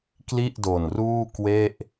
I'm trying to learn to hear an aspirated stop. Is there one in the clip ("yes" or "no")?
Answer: no